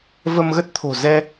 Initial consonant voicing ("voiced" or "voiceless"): voiced